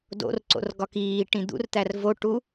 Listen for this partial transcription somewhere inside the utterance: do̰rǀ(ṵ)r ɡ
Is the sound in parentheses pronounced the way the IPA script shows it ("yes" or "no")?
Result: no